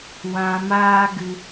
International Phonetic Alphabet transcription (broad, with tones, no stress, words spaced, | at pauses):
wã˧maː˦ɡɨ˧